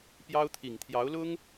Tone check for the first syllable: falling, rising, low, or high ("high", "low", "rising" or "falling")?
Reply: high